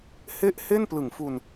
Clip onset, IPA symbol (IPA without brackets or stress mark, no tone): h